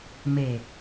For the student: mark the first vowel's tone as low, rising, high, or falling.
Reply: low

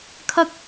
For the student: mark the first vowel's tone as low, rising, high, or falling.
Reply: high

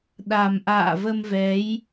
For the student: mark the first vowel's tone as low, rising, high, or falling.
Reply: low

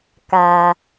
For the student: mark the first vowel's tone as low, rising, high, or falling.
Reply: low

